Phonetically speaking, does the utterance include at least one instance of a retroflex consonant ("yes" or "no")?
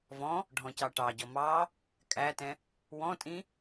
yes